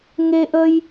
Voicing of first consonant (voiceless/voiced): voiced